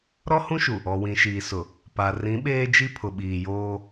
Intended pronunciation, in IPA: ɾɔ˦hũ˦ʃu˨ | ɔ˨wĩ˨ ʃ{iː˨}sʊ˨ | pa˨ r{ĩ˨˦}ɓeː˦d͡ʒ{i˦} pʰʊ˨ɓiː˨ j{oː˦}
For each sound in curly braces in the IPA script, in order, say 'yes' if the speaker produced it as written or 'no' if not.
yes, yes, yes, yes

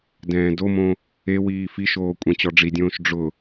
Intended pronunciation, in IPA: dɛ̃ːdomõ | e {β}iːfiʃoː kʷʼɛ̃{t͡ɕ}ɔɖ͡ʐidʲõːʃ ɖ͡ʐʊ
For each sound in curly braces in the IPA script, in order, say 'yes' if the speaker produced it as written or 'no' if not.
no, yes

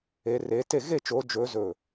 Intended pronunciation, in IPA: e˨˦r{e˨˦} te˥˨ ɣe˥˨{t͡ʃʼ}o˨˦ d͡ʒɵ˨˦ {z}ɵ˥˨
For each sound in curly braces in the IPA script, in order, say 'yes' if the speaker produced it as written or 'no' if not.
yes, no, yes

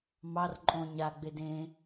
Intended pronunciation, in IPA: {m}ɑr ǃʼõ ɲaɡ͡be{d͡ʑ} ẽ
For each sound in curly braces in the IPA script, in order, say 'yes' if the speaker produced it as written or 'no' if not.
yes, no

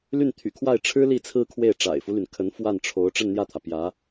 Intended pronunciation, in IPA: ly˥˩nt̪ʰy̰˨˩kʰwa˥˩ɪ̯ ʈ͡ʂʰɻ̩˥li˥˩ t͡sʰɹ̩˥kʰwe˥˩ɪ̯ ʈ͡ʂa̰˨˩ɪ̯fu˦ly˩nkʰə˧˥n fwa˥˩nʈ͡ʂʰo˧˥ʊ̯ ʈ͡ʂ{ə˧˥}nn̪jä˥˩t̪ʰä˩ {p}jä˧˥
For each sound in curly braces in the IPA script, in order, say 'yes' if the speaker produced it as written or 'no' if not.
no, yes

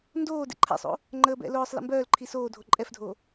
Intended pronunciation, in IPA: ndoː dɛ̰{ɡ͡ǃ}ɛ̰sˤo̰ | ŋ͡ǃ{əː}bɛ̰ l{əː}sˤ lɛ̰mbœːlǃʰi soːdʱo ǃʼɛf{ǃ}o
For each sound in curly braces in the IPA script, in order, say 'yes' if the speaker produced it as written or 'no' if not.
no, yes, no, no

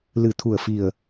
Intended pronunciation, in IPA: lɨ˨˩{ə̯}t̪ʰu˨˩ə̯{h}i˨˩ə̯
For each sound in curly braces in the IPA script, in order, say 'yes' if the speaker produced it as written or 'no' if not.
no, no

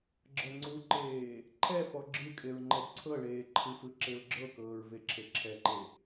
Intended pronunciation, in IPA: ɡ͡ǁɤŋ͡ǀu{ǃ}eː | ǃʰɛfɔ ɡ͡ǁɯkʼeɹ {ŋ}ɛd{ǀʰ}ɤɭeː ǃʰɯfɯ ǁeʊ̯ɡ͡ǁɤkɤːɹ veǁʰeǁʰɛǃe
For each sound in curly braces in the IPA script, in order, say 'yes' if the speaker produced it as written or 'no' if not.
yes, no, yes

